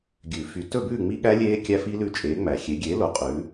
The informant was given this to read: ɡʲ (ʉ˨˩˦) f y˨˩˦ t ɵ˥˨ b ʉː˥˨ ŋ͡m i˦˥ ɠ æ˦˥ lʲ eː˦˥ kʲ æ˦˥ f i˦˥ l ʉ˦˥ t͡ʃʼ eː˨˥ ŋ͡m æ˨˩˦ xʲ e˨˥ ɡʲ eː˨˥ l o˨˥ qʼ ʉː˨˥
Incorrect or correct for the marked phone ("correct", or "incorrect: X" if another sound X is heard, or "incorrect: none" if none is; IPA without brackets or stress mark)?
correct